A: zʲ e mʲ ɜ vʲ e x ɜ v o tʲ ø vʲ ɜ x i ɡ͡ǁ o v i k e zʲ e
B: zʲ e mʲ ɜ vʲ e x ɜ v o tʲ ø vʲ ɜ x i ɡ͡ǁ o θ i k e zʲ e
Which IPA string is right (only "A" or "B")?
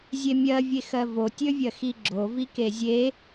A